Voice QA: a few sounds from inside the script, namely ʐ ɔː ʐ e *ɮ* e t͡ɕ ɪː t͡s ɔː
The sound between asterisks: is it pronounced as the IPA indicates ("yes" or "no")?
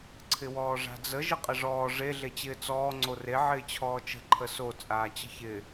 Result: yes